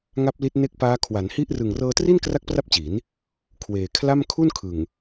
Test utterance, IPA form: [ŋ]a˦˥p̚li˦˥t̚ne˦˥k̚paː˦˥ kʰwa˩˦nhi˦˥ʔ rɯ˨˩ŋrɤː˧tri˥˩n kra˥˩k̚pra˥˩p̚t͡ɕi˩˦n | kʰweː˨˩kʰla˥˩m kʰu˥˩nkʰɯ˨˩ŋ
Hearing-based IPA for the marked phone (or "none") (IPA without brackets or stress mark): ŋ